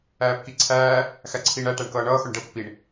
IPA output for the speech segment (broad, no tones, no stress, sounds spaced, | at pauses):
æː p k i ǀʰ æː | x æ ǀʰ iː ɳ æ ʈ æ ɳ k ʌː ɳ ʌː x ʊ ɳ ɖ ə p ɪ p i ɳ